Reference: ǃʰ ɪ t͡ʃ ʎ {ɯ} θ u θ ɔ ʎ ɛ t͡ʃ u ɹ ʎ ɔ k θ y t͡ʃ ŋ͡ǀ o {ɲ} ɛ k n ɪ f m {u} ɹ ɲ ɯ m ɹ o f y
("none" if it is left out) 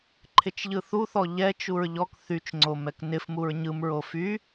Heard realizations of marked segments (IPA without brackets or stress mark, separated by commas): ɯ, m, u